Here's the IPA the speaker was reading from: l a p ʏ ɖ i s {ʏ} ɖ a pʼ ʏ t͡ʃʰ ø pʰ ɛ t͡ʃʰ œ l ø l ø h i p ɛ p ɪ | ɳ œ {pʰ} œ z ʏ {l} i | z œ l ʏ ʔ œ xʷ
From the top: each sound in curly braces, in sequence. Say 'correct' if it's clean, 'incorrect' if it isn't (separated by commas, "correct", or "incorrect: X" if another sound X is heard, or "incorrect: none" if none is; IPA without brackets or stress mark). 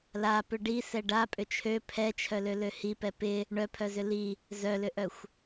incorrect: ɛ, correct, correct